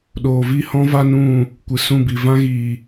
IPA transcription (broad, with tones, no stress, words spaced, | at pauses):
ɗoː˨vi˦˨hɔ̃˦ va˦nũ˦˨ | kʷɨ˨sũ˦˨bi˨ vã˦ɣiː˨